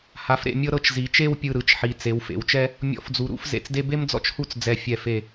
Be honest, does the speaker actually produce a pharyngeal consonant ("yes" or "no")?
yes